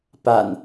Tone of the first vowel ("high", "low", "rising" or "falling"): low